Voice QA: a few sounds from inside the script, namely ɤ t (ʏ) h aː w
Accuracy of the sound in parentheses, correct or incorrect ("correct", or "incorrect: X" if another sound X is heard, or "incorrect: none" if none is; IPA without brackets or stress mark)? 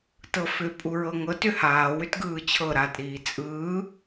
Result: correct